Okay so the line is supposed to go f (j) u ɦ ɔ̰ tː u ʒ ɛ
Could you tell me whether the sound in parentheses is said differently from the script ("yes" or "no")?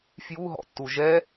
no